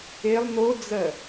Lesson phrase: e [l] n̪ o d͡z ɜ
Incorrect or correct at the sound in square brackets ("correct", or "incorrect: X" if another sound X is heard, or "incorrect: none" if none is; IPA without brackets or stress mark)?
incorrect: lˠ